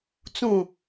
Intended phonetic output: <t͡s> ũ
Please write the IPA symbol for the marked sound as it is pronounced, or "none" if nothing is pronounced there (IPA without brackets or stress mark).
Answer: t͡s